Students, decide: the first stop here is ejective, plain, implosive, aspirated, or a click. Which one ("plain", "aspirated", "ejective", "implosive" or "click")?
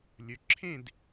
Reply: click